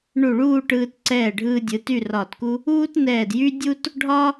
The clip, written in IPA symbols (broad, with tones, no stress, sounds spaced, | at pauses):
ɳ u˧˩ ɭ uː˥˧ ʈ ɯː˧ t ǀ ɛː˧˩ ɖʱ ɯː˧ dʲ ɯ˩˧ t y˥˧ r ɒː˧˩ t k u˥ | uː˥ t n ɛː˧˩ d j y˥ dʲ u˥ t | ɖʱ ɒ˥